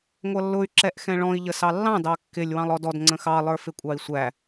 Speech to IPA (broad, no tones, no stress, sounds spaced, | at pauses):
ŋʷ ʌ lː ʊ y̯ ǁ ɛ ʔ x ɛ̃ ɭ ɔ̃ i̯ ʎ ə s ɑ lː ɑ̃ d ɑ kː ɪ lʲ w ɑ̃ lˠ ɔ d ɔ d ŋ͡ǀ ə̃ x ɑ lˠ ə˞ f ɪ kʷʼ ɑ i̯ sʷ æ